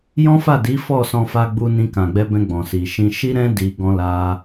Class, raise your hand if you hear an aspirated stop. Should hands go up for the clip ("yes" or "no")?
no